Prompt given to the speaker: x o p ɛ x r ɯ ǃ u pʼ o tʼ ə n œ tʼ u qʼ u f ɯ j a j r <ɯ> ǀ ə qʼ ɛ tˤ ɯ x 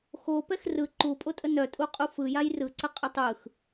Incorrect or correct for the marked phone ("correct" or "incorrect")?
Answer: correct